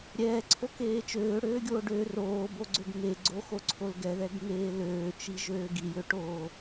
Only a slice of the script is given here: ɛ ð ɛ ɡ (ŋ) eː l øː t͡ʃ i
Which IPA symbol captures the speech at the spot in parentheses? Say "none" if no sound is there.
ŋ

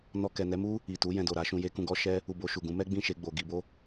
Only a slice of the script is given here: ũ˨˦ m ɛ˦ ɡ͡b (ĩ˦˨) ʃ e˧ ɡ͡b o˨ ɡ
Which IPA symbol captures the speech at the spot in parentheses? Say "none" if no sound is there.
ĩ˦˨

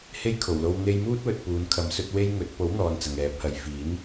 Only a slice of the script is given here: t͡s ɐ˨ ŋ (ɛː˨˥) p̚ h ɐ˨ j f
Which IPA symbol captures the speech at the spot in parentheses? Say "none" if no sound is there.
ɛː˨˥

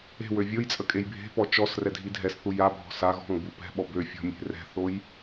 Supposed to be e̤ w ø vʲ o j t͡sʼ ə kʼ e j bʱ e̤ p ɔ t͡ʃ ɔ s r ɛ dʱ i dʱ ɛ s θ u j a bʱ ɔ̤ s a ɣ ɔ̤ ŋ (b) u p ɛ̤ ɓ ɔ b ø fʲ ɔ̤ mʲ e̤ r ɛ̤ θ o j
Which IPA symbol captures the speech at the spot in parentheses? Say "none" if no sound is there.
b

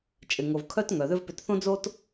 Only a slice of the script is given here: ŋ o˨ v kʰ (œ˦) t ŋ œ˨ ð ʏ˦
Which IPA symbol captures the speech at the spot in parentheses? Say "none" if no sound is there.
œ˦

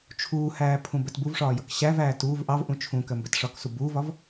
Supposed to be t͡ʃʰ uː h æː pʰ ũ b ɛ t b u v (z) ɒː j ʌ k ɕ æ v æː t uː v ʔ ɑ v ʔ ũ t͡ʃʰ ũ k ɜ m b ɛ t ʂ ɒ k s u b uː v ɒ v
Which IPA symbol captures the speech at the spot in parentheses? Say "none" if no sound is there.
ʂ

